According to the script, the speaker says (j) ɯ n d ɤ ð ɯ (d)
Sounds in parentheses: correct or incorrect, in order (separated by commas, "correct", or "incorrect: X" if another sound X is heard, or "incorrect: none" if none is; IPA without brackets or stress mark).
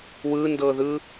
incorrect: w, incorrect: none